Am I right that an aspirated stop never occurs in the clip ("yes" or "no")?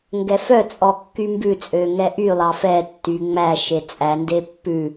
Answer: yes